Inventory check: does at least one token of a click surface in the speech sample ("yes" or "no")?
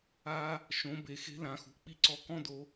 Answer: yes